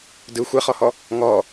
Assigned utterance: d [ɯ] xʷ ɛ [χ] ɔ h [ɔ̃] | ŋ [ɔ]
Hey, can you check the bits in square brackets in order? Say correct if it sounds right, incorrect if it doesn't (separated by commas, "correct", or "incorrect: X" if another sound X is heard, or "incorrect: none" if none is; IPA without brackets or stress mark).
correct, correct, incorrect: ɔ, correct